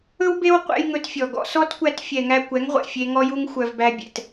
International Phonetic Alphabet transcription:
ɵ˦wbe˦wqʷɛ̰˧j ŋɵ˧tfʲɔ˨ɡɔ̰˧ sɔ˦tkʷæ˧t fʲɛ˨ŋæ˧kʷɛ˨˦ŋʁʷɛ̰˨ fʲe˧ŋɔ˦ju˦ŋ xʷœ˧vbæ˦ bʲɛ̰˨t

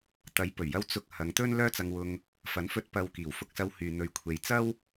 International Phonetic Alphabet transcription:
t̪ɐ˨˥j pɵ˨˩ɥjɐ˧w t͡sʊ˧k̚ hɐ˨˧ŋt̪ɵ˥n lœː˥t͡sɐ˧ŋwʊ˧ŋ | fɐ˨˥nfɵ˧t̚ pɐ˨w kiː˨˩wfʊ˧k̚sɐ˧w hyː˨n̪ɵ˨ɥ kʷʰe˨jt͡sɐ˥w

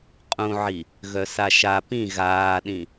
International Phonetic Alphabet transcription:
qʼũʕi | ɣœsaʃa pĩ ɣaːɗĩ

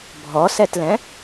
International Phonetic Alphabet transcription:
bʱɔsɛtlɛ̃

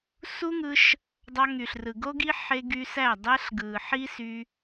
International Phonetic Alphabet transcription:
su˦ ŋɯ˧ʃ | dˤɑ˧ŋy˨ɬrɯ˨ ɡo˧ɡi˧ ħe˧ ɡy˧sæ˦˨ dˤæ˧ɬɡɯ˨ ħi˦sy˧

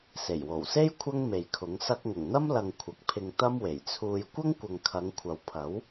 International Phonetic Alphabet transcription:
se˨˩jwo˨˩wse˥j kʷʰɐ˥ŋme˨jkʰʊ˨˥ŋ sɐ˧k̚ŋʊ˨˩ŋn̪ɐ˥mlɐ˨ŋ kʷʰɐ˨k̚pʰɪ˧ŋ t̪ɐ˥mwe˨˩jt͡sʰuː˧j kʷɐ˥ŋkʷɐ˨ŋkʰɐ˨˧ŋ kʷʰɐ˨w pʰɐ˨˥w

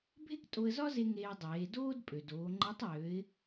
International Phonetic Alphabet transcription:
bʱe˥ktʼo˧ə̯zɒ˥ze˧ ŋeː˧dˤeː˩˧ doː˥dpʼø˩doː˩˧ŋ͡ǃe˧˥tˤ jø˩˧ɪ̯

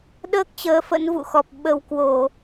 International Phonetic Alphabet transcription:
ɗəː˦˥k̚ t͡ɕəː˨˦fə̰˧˥nvṵ˧˨xɔ˨˩p̚ ɓə˨˩wkwo˧˩˨

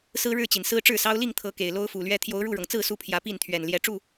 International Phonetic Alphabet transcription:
sɹ̩˦ɻɻ̩˥˨t͡ɕi˩n sɹ̩˦ʈ͡ʂɻ̩˥˨sɑ˦ʊ̯ li˥˨ŋt̪ʰɤ˨˦ ke˨˩ɪ̯lo˦ʊ̯fu˨˩lɥɛ˦ t̪ʰjo˨˦ʊ̯ɻu˥˨ɻɤ˩ŋt͡sɹ̩˥˨ su˦pʰjä˨˦pi˥˨nt̪ʰɥɛ˨˩n ljɛ˨˦ʈ͡ʂu˥˨

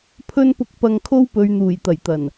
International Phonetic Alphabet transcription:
pʰɵ˧npʊ˨k̚pɐ˨ŋ kʰo˥wpɵ˨˧ɥn̪uː˨˩j t̪ɐ˨˩jt̪ɐ˨˩n

